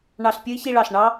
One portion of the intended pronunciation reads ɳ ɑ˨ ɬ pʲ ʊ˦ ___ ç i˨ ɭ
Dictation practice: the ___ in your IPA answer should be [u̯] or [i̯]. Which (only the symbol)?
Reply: i̯